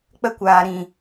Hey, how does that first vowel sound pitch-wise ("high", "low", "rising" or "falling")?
high